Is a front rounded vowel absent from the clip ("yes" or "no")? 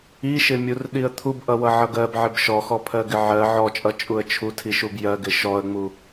yes